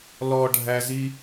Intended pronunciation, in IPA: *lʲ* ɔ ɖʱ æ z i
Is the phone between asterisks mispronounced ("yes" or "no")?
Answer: yes